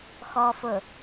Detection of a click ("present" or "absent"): absent